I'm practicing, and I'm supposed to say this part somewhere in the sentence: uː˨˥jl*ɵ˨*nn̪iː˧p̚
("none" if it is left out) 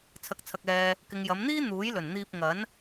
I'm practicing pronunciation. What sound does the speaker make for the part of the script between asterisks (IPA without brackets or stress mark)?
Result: ɵ˨˩